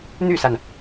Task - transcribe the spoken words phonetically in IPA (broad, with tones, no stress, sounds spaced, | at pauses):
n̪ y˥˩ s a˩ n